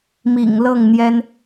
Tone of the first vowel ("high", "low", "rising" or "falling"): low